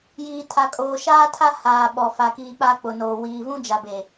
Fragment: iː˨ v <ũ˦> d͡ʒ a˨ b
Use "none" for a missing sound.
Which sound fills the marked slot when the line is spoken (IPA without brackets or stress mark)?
ũ˦